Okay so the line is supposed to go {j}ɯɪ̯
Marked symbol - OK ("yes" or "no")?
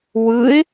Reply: no